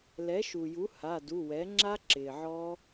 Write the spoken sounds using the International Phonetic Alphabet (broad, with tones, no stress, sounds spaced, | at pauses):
l ɛ˩˥ ʃ u˩ j u˩˥ h a˩˧˩ d u˩˧˩ w ɛ˩˥ ŋ͡ǁ a˦˥ ǁ ɪː˩ ʕ ɔ˦˥